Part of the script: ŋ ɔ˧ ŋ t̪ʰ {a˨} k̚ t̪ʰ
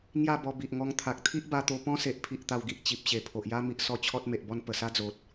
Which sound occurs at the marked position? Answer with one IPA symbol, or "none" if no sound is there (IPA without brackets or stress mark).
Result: a˨